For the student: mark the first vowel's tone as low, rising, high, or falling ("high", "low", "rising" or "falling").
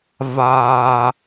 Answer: low